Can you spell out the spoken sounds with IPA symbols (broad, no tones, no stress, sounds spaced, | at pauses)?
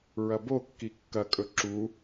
ɹ ɐ b o kː i kː ɐ kʼ ɵ ǁ u